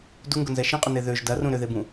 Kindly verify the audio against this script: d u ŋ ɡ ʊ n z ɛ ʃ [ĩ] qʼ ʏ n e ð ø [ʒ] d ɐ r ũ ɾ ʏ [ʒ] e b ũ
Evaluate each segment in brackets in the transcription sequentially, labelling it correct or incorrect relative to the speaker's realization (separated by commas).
correct, correct, incorrect